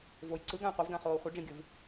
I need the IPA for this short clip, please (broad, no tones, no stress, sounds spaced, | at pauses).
v o j ǀ ɯ ɡ ã j qʷ ɯ v ɡ ã χ oː χʷ ɯ ɖ͡ʐ ĩ ɡʲ ɯ v